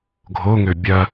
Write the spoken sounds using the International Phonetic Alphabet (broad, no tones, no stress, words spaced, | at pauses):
ɡʱoŋø bʲɐ